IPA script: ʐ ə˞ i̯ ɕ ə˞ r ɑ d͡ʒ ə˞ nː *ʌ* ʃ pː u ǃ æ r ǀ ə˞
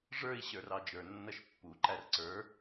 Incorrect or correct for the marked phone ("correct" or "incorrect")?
correct